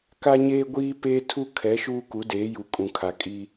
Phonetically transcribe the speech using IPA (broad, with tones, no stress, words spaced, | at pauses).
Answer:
ka˦ɲeː˦ɡʷiː˦peː˦ tʰu˦kʰɛ˨˦ʃuː˦ ku˨˦deː˨˦ju˨ kʼũ˨kʰa˨kʼi˦